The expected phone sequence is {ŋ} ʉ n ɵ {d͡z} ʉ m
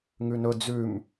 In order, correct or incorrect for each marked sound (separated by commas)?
correct, correct